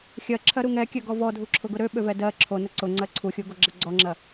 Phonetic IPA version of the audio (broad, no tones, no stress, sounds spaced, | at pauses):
xʲ ɜ ǁʰ ɜ ɾ u ŋ ɛ kʲ ø ɡ ɔ v ɔ dʱ u ǁʰ ʊ ɡ ʊ ɾ ø ɓ ø v ɛ d ɜ ǁʰ o n ə ǀ ʊ ŋ͡ǀ ɜ ǀʰ u xʲ u ɡ o ɡ͡ǁ ɐ ɡ͡ǀ ɔ ŋ͡ǁ ɐ